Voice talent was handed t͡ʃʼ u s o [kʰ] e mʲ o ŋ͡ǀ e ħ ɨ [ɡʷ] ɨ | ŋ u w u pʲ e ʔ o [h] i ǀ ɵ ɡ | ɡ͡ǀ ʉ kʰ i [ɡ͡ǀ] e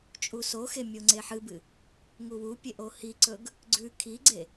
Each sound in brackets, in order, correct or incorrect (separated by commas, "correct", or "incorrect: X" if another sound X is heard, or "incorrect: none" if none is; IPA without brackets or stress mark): incorrect: x, incorrect: b, correct, correct